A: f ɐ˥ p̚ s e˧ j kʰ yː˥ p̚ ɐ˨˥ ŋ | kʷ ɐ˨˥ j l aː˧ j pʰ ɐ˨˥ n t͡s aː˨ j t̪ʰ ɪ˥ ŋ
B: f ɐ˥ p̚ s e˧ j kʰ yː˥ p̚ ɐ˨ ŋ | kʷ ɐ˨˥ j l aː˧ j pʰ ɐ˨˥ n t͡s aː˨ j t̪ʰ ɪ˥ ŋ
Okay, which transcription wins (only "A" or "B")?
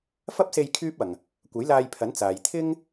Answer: B